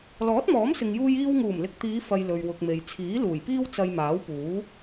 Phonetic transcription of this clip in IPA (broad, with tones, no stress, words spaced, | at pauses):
lɔː˨˥t̚mɔː˨˥msɪ˨ŋjuː˧j iː˧wŋuː˨˩mlɪ˨k̚t̪iː˨˧ fɐ˧jlɵ˨ɥwʊ˨k̚me˨j t͡sʰiː˨˥luː˨˩jpiː˥w t͡sɐ˧jmaː˨˥wpuː˨˥